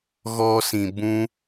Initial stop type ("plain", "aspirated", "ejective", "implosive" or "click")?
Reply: plain